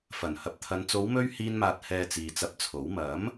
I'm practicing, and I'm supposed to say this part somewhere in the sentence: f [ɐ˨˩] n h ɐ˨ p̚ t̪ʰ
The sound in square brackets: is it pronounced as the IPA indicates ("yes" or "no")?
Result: yes